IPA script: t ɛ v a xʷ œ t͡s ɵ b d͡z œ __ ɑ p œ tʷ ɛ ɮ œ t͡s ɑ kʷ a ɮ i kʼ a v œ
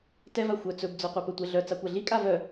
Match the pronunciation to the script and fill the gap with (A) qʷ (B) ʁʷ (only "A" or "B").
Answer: A